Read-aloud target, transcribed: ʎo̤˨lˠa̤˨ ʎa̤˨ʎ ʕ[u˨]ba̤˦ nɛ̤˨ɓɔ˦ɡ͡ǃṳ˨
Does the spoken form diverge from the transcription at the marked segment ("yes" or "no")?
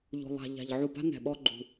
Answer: no